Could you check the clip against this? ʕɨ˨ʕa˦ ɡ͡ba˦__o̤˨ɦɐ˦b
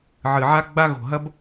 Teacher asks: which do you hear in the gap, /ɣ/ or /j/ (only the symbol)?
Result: ɣ